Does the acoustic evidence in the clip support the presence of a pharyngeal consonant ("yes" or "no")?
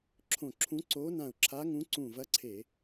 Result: no